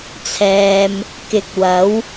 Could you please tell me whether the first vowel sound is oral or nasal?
oral